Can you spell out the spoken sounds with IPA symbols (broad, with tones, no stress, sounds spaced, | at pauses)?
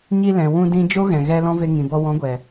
ɲ i˧ l ɛ̃˨ w ũ˧ d ĩ˧ d͡ʒ o˦ ɣ ɛ̃˨ ɣ ɛ˧ l ɔ̃˦ v e˧ ŋ ĩ˨ b ɔ˧ w ɔ̃˨˦ ɡʷ ɛ˨